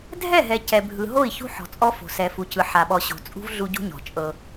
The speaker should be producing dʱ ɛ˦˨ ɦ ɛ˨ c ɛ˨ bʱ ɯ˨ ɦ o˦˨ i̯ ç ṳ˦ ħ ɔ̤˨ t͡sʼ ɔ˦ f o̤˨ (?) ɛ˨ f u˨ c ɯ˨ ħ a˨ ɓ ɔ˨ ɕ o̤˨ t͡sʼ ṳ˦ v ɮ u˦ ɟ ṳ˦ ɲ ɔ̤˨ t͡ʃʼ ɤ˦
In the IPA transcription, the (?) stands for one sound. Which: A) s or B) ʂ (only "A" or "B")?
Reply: A